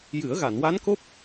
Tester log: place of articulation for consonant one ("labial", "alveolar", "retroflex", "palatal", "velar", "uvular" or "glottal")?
palatal